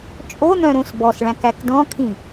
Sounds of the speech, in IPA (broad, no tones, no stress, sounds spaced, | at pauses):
t͡ʃʼ o n̪ œ̃ ɾ õ s b ɔ s ɭ æ̃ k æ k d ɔ̃ kʰ ĩ